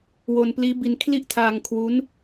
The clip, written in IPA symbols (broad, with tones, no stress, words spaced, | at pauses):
wo˧npliː˦˥bi˧n kʰli˥˩ʔtʰaː˧ŋ kʰwu˦˥n